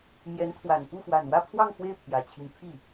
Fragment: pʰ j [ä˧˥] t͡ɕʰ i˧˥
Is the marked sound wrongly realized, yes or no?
yes